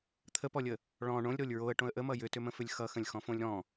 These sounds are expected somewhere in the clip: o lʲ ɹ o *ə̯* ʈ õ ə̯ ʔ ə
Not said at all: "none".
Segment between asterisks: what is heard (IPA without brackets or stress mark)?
ə̯